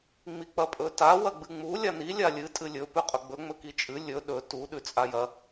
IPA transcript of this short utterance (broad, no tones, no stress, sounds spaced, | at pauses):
ŋ͡m i k͡p ɐ pʼ ɵ t a w ɐ ɡ͡b ɨ ŋ͡m u lʲ a n i lʲ a lʲ ɨ tʼ ɨ lʲ ɵ p ʉ qʼ ɵ ɡ͡b ɵ ŋ͡m ɵ k i t͡ʃʼ ɨ lʲ ɵ ɗ ɵ t u ɗ ʉ t͡sʼ a j ɐ